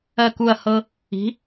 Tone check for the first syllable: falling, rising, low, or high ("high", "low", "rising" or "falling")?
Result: falling